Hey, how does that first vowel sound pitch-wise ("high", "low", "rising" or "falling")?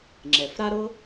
low